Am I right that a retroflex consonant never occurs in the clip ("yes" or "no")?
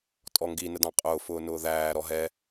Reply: yes